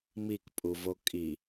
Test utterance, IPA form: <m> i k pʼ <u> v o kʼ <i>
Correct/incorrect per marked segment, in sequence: correct, correct, correct

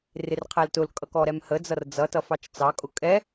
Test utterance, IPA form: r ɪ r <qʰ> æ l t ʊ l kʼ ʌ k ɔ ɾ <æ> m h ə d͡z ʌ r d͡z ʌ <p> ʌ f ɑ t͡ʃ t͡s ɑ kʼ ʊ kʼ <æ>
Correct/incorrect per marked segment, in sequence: correct, incorrect: ɛ, incorrect: t, incorrect: ɛ

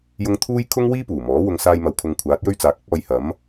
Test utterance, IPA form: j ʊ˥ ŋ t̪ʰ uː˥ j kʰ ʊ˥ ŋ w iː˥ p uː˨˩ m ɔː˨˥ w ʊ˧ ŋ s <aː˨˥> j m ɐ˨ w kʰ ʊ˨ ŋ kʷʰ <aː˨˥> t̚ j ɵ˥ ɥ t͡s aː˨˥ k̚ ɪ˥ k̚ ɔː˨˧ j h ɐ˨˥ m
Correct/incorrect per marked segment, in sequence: incorrect: aː˧, correct

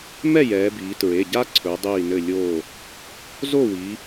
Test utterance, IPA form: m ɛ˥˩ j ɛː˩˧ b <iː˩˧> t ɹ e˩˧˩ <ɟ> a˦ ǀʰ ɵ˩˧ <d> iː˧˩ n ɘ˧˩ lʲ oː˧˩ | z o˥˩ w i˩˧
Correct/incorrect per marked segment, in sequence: correct, correct, incorrect: dˤ

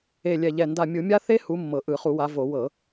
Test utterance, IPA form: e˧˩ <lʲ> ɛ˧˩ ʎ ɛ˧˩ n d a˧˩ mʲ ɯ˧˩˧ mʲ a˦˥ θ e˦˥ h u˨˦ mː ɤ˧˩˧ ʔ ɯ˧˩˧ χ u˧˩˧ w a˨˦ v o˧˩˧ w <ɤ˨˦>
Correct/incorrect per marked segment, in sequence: correct, incorrect: ɤ˧˩˧

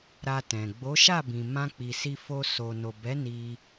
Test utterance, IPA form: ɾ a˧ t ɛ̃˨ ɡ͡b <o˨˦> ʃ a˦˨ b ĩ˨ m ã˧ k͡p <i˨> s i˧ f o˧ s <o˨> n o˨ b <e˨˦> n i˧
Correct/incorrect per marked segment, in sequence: correct, correct, correct, incorrect: ɛ˨˦

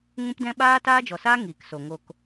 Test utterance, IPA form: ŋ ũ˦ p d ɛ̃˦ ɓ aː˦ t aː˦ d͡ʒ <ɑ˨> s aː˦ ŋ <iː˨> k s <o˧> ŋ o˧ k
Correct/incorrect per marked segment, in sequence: incorrect: ɔ˨, correct, incorrect: o˨

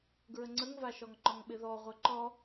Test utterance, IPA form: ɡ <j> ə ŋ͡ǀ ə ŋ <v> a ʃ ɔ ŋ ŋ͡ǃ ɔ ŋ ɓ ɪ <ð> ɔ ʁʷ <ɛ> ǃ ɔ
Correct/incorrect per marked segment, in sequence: incorrect: ɹ, correct, correct, correct

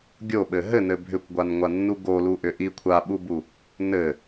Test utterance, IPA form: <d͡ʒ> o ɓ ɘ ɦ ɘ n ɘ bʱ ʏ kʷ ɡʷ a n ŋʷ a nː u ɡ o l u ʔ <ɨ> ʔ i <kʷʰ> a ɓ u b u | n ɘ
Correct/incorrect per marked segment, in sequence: incorrect: ɡʲ, incorrect: ʏ, correct

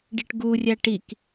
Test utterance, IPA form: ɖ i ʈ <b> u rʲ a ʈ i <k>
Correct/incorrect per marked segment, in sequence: incorrect: ɡ, correct

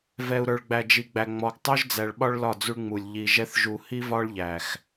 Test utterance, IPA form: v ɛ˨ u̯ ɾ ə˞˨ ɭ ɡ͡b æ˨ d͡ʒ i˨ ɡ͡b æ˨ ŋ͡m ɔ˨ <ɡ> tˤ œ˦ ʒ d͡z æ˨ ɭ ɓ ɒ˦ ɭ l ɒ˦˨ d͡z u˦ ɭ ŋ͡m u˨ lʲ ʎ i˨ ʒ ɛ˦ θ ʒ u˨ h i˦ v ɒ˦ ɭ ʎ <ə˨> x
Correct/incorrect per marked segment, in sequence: correct, incorrect: æ˨

